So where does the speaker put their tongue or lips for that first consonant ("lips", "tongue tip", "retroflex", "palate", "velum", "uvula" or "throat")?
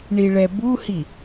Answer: retroflex